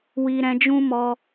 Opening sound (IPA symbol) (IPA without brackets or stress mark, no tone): w